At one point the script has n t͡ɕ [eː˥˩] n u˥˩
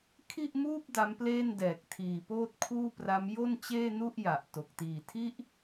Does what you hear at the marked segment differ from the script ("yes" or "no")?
no